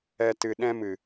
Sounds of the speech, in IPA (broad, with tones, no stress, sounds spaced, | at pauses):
ɛ˧ t ɨ˨ ɗ ɛ̃˧ m ɨ˨